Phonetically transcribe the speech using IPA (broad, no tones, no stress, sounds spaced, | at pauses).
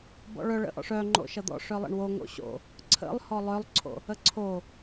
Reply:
b ɔ̰ ɭ œ ɭ ə̰ ʔ ɔ̰ ʂ œ ŋ͡ǃ o̰ ʃ ʌ d̪ ɔ̰ ʂ œ lˠ ə̰ ɳ w o ŋ o̰ ɕ o̰ | ǀʰ ə̰ lˠ h ɔ lˠ œ lˠ ǀʰ o̰ | ə ǀʰ o